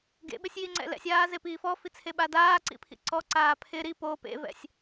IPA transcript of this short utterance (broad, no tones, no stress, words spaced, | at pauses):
ɡḛɓɪsʲjiŋ͡ǀɛ̰ lɛ̰sʲaːzepiː fɔfit͡sʰeɓa daːǀḭpʰḭ ǀɔǀaː pʰɪ ɾi po pḛvɛ̰sʲ